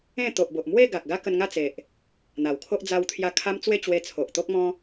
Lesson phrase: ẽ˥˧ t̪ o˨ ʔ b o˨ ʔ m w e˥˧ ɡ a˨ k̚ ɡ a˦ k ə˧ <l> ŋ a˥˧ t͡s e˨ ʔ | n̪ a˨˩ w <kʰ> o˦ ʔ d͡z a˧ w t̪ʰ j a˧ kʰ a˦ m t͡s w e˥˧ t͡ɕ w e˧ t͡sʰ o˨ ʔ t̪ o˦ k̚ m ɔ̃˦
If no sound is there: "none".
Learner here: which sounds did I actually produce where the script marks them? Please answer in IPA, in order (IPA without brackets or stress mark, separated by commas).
n, kʰ